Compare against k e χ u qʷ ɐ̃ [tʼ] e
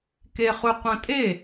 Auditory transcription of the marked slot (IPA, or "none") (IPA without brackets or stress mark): tʼ